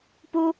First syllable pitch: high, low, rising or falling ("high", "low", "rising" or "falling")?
high